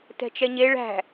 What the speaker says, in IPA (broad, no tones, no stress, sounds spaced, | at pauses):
t ɛ̤ t͡ʃ ɛ ɲ e ɭ æ̤